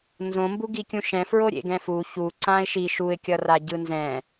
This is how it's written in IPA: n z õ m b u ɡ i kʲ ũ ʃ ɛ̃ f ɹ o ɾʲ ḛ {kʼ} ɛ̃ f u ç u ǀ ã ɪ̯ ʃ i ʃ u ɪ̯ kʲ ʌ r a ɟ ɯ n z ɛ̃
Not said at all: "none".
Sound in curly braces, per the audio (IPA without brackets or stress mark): ɡ